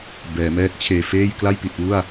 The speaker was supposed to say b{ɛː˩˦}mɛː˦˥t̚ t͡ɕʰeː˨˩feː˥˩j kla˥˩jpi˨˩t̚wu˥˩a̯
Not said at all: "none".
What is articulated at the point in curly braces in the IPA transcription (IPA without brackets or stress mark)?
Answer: ɛː˩˦